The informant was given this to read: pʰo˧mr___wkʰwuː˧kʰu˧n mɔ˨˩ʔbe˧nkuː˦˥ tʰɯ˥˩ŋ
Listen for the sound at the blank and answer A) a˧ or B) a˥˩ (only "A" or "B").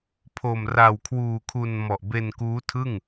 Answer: A